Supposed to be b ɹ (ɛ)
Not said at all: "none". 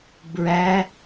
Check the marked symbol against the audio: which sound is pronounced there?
æ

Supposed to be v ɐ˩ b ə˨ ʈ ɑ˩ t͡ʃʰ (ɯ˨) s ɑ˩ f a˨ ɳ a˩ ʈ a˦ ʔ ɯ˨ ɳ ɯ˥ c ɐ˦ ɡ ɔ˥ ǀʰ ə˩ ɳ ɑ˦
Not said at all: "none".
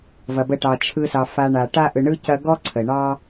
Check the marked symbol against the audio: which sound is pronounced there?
ɯ˨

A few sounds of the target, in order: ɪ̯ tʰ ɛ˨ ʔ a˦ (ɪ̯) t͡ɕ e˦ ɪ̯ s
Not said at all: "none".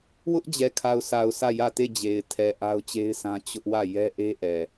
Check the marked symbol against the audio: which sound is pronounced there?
ʊ̯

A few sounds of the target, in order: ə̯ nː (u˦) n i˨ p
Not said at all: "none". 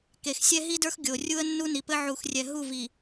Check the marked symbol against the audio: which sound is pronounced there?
u˦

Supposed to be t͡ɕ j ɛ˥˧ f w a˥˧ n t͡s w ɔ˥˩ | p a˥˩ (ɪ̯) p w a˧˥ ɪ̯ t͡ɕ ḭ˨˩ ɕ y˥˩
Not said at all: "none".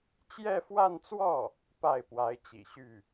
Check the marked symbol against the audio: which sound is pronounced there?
ɪ̯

